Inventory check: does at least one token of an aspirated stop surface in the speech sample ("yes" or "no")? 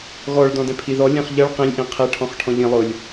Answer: yes